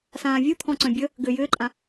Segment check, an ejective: present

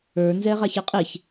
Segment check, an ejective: present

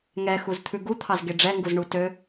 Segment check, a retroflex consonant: present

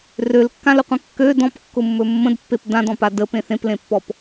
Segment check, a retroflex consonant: absent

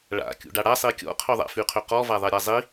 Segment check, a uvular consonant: present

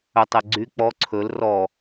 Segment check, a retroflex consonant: absent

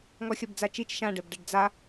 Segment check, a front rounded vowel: absent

